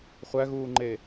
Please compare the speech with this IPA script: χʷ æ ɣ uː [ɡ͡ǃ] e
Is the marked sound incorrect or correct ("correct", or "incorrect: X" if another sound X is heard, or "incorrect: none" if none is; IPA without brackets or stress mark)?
incorrect: ŋ͡ǃ